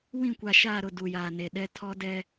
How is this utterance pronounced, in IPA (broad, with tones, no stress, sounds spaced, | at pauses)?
w ĩ˦˨ kʷ a˨ ʃ aː˦˨ ɾ ʊ˦˨ d u˨ j aː˨ n e˨ ɗ ɛ˦ tʰ ɔ˦ d ɛ˦